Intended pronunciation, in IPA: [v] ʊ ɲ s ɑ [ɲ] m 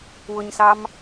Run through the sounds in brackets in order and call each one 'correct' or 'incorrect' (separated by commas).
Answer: incorrect, incorrect